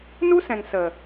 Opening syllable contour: high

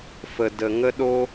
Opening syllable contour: low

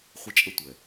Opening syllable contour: high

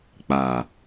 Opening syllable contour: low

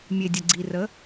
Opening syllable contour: low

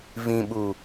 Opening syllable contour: low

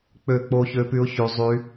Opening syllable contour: falling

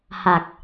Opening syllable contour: low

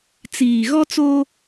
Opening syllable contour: low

